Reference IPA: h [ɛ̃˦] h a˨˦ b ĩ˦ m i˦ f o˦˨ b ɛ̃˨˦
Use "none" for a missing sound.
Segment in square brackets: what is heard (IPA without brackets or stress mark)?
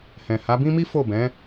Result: ɛ̃˨